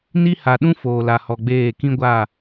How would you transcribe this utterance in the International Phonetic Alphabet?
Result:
n i˦ h a˨ ɗ ũ˦ f oː˨ l a˨ h ɔ˨ ɡ͡b eː˦˨ k ĩ˦ ɡʷ a˦˨

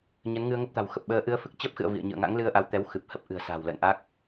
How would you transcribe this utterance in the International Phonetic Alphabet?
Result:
ɲ ə˨˦ n ŋ ɨ˧ ə̯ ŋ ə˦˥ p̚ t̪ a̤˨˩ w x ə˨˩ p̚ ɓ əː˧ ʔ ɨ˧ ə̯ f ɨ˦˥ k̚ t͡ɕ ə˦˥ p̚ x ɨ̰˧˨ ə̯ v ḭ˧˨ ə̯ ɲ ɨ̰˧˨ ə̯ ŋ a̰˧˥ ŋ l ɨ˧ ə̯ ʔ a˨˦ w t̪ ɛ˨˦ w x ɨ˨˩ p̚ h ə˦˥ p̚ ʔ ɨ̤˨˩ ə̯ s a̤˨˩ w l ə̰ː˧˨ n ʔ a˦˥ k̚

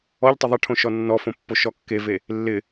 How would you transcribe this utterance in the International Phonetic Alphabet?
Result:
ɔ ʎ tˤ ɪ ðˤ ɪ ʈʰ õ ʃ ɔ nː ɔ f õ pː o ʃ ɔ kː e v e | lː ɪ

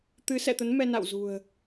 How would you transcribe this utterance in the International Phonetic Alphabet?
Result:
t̪ ɨ˨˦ s ɛ̰˧˨ t̪ ə˨˦ n m ɛ˧ n a̰˧˨ w z ṳ˨˩ ə̯

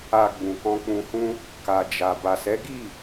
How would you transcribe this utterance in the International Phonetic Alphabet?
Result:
a˨ ɡ͡b ũ˨ k ɔ̃˧ k͡p ũ˧ h ũ˦ | k a˨ d͡ʒ a˨ b a˨ s ɛ˨˦ ɡ i˦˨

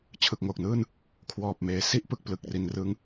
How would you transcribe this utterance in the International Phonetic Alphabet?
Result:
t͡ɕʰ ɯ˨˩ k̚ ŋ oː˨˩ k̚ n ɯː˥˩ n | kʰ w ɔː˨˩ p̚ m eː˩˦ s i˥˩ ʔ p ɯ˨˩ k̚ p l ɯ˨˩ k̚ r i˩˦ n r ɯ˦˥ ŋ

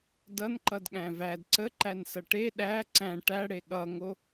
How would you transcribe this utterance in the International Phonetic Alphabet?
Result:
d ʌ n ǃ ʌ d ɠ æ̃ v æ d ǀ ə ǃ æ n s ʌ ʈ e ɗ æ ǀ æ̃ ʈ æ ɽ e ɠ ʌ ŋ o

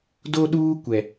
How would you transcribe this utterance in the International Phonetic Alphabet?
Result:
d o˦ ɗ uː˦ kʷ ɛ˨

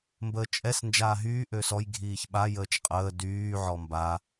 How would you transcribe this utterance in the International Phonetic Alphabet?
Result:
m b əː t͡ʃʼ ɛ s n d͡ʒ aː ɦ yː ʔ ø s ɔ j ɡʱ iː ç ɓ a j əː t͡ʃ qʼ əː d yː ʕ ɔ m b a

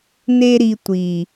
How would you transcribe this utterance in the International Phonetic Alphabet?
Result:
n e˥ ɾ i˧ tʷ i˨˩

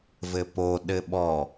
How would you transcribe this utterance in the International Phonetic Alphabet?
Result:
v ɘ p o ɗ ɘ ɓ ɔ

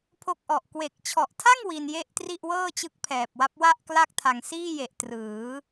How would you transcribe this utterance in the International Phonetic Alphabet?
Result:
pʰ o˦˥ k̚ ʔ ɔ˨˩ ʔ k w e˨˩ k̚ t͡ɕʰ ɔ˨˩ ʔ tʰ a˥˩ ŋ w i˧ n j e˥˩ ʔ t r i˥˩ ʔ w ɤː˥˩ t͡ɕ ɯ˦˥ k̚ pʰ ɛː˨˩ p̚ w a˦˥ p̚ w a˥˩ ʔ k l a˥˩ k̚ tʰ a˨˩ ŋ s iː˥˩ j e˨˩ ʔ t r ɯː˩˦

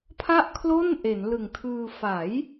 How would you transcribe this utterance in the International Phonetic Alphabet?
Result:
pʰ a˥˩ ʔ kʰ l o˥˩ n ʔ e˩˦ n l ɯ˨˩ ŋ tʰ ɯː˧ f a˩˦ j

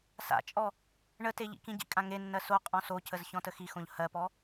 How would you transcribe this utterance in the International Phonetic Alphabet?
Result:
s a̰ t͡ʃʼ ɔ | ɳ ə t e ʎ ḭ k ĩ ɟ ḭ kʼ ã ŋ e nː ɜ s o qʼ ɔ̃ s o c ə z ç ɔ̃ t ə x i x õ ʎ h ɜ p ɔ

